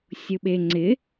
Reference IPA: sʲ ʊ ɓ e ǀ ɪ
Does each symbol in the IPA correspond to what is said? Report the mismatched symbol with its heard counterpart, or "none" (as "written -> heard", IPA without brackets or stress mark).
ǀ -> ŋ͡ǀ